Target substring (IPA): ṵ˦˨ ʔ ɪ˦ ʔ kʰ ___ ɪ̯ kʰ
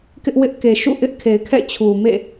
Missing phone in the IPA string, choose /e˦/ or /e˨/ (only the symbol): e˨